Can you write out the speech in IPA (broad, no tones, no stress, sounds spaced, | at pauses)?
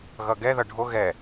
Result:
ɣ ʌ ɡ ɛ ð ʌ ɖʱ o ɣ ɛ